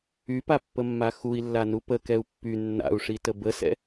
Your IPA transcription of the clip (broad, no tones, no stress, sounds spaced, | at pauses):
y p a pː ə mː a x u i̯ lː a n u p ə k ɛ u̯ pː y nː a̰ u̯ ʂ i t ə b ə s ɛ̰